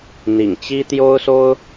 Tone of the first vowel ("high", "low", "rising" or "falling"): low